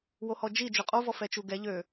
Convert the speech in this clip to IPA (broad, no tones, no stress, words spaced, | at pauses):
wohɔd͡ʒi d͡ʒøqʼo vɔfɛt͡ʃuɡɛ ʎø